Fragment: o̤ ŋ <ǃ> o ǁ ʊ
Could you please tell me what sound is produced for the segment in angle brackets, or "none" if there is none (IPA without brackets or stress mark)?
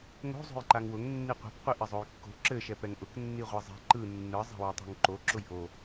ǃ